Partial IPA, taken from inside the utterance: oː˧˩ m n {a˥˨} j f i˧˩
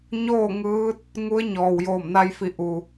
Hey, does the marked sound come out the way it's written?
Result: no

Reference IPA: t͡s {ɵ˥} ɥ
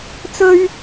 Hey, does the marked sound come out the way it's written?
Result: yes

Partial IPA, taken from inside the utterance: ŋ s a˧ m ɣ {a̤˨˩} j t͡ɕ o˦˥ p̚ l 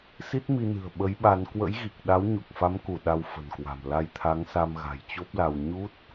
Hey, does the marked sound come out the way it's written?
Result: yes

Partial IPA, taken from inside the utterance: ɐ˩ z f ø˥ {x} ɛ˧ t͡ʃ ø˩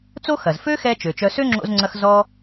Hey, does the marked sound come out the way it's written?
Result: yes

